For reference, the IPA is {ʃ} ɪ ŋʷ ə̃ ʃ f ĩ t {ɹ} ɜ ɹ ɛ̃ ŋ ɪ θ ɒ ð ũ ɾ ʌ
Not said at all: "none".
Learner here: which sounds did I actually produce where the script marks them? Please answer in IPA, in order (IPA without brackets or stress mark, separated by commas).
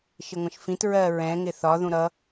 ʃ, ɹ